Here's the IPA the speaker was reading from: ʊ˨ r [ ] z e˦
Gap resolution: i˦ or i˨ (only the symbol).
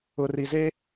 i˨